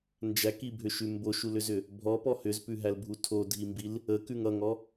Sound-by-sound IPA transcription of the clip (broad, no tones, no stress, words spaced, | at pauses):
nd͡ʒækibʱʏʃʉ mboʃulʏzʏ | bʱɔpɔ hʏzpʉɦælbʱu tʰodʱimbil | əkʉŋ ʌŋɔ